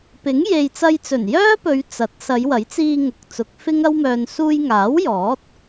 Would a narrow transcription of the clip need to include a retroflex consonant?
no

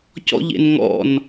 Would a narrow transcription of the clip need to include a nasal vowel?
no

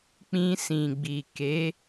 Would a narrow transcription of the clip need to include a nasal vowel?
yes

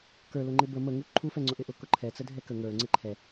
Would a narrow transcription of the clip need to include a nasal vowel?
no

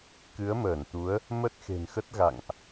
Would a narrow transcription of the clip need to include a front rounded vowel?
no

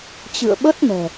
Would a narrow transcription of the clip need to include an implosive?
yes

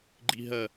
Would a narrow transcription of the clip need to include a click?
yes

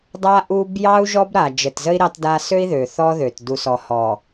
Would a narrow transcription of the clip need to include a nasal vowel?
no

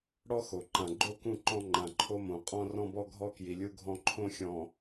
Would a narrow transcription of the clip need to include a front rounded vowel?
no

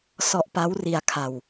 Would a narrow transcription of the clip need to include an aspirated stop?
yes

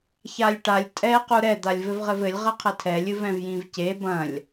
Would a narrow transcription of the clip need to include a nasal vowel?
yes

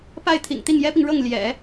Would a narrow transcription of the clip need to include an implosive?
no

